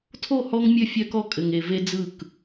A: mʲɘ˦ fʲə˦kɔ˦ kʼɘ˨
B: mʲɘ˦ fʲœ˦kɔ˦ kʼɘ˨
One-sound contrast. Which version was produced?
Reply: B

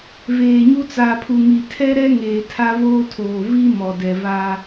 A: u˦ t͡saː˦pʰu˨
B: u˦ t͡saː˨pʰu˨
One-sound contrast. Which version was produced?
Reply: B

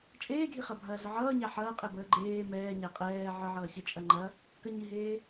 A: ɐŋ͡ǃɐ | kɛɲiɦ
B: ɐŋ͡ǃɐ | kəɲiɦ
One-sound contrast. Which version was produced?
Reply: B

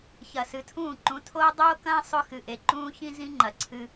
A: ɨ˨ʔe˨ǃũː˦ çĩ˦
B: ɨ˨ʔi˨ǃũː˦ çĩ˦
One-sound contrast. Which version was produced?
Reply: A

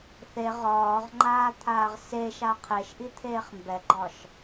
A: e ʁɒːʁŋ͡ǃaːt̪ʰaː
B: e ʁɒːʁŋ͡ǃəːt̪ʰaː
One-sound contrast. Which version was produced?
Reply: A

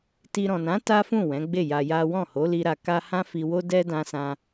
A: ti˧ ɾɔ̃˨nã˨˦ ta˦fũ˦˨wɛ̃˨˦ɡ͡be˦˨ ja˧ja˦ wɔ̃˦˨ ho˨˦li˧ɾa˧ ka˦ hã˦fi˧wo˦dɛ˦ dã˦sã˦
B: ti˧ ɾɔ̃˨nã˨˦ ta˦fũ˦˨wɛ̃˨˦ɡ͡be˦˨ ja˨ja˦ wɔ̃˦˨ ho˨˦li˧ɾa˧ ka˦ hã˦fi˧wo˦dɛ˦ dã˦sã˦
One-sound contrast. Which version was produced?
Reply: A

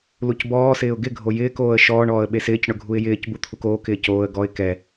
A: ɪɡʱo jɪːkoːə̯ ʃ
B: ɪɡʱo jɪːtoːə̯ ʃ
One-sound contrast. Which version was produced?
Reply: A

